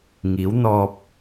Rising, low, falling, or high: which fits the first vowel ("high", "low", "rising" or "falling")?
rising